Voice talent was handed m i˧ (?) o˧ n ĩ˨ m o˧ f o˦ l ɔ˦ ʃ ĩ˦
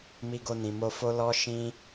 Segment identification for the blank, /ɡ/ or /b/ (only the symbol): ɡ